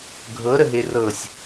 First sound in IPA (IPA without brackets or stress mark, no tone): ɡʱ